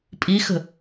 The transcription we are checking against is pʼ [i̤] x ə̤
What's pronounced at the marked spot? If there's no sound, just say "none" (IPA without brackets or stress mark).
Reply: i